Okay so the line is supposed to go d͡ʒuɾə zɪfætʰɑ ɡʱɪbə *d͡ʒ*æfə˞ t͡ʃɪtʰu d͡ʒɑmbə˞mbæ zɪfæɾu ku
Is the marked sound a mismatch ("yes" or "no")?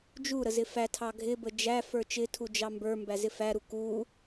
no